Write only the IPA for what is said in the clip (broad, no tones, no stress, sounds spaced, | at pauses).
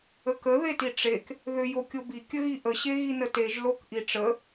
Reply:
ə k ə ð e t i ʈ͡ʂ e k | ð ʏ j o kʲ o b i kʲ ə ɣ i ʔ ə ɕ e ɣ i n ə t e ʒ l o k ʔ i ʈ͡ʂ ə